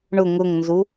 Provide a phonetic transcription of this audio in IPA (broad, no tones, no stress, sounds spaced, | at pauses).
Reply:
ɳ ʊ ŋ ʊ ŋ n z u